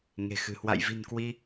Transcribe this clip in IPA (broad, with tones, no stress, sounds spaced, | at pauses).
ŋ e̤˨˩ x ɨ̤˨˩ h w a̰˧˨ j v i̤˨˩ n k w i˧